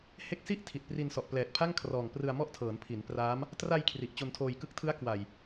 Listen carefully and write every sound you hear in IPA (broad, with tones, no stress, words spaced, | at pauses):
he˦˥k̚si˥˩ʔ tʰi˨˩t̚pri˧nsɔ˨˩ʔ plɛː˨˩t̚pʰa˥˩ŋkʰrɔː˨˩ŋ prɯ˧a̯mɔ˥˩ʔtʰɤː˩˦n pʰi˩˦n praː˦˥m | tra˧j kʰri˨˩ʔt͡ɕo˧ntʰoː˧j kɯ˦˥k̚tʰɯ˦˥a̯ kwa˨˩j